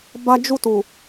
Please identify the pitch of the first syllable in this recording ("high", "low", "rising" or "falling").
high